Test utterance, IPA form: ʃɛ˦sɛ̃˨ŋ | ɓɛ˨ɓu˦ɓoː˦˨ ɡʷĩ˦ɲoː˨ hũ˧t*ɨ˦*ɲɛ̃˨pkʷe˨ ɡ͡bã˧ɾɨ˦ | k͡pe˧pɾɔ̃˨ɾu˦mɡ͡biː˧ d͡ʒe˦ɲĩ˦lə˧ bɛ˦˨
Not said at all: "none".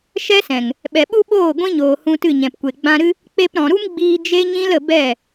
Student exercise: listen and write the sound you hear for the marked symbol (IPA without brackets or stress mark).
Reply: ɨ˦˨